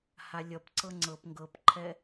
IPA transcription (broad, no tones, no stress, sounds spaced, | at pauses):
h a lʲ ʌ p ǀ ɤ ŋ͡ǀ ɤ p ŋ ɡ ɤ p ǃʰ ɛ